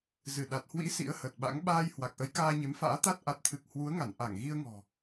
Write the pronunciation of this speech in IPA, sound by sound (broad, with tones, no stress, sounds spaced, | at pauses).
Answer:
z ɨ˧˩ ɗ a˨˩ t̚ h w ḭ˧˥ s ḭ˧˥ ə̯ h ə˨˩ t̚ ɓ a̰˧˥ ŋ ɓ aː˧ j h w a˨˩ k̚ ʔ ə˨˦ j k aː˧ ɲ e˨˦ m f a̰ː˧˥ t̪ a˦˥ t̚ ʔ a˨˩ t̚ t̪ʰ ɨ˨˩ k̚ h w u˨˦ ə̯ ŋ a˧˩ n ʔ a˧˩ ŋ ɣ i˧ ə̯ ŋ ɔ̤˨˩